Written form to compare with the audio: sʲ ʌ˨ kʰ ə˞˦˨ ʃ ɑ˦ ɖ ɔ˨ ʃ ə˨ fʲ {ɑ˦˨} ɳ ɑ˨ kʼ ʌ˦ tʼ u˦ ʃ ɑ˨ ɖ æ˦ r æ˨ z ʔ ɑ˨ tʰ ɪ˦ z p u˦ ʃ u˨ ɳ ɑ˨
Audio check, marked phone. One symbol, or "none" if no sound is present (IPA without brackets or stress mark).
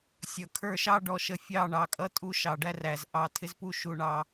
ɑ˦˨